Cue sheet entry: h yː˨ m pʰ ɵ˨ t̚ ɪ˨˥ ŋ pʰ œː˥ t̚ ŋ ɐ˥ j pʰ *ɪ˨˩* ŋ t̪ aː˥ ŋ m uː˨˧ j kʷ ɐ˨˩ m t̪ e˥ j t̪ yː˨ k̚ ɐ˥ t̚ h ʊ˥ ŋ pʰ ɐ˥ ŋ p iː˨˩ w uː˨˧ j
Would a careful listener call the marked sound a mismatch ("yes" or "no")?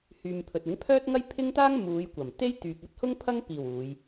yes